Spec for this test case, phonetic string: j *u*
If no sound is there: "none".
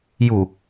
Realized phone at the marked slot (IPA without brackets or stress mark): u